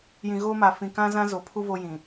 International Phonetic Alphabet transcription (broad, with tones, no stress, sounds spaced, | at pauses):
j ĩ˨ ɣ oː˦ m a˨ f ĩ˨ k ã˦ z ã˦ z o˨ pʰ u˦ v o˦ j ĩ˨